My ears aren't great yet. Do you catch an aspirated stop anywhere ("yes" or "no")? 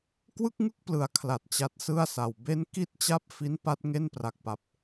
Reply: yes